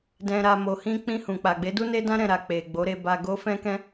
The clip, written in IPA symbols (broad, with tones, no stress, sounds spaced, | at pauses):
d ɛ̃˧ ɾ a˧ m o˨ h ĩ˧ k͡p ĩ˧ h ũ˨ k͡p a˨ ɡ͡b e˨˦ d u˦ n e˦ d ã˦ ɾ ɛ̃˧ ɾ a˨ k͡p e˨ ɡ͡b o˨˦ ɾ e˧ b a˧ ɡ o˦ f ɛ̃˦ k ɛ̃˦